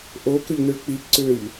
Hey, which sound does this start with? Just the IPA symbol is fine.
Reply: ʔ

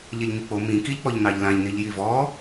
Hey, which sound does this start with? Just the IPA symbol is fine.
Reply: ʎ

